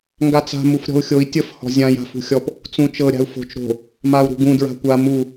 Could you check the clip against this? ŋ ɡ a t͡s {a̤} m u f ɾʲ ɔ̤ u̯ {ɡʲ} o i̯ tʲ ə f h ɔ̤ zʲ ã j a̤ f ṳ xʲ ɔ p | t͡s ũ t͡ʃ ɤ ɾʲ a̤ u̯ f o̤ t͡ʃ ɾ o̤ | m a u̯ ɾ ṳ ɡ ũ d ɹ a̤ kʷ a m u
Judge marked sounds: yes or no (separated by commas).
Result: yes, no